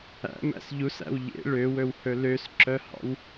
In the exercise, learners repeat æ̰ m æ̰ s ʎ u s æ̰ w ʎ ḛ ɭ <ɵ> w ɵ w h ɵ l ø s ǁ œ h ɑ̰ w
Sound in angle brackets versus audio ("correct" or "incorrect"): incorrect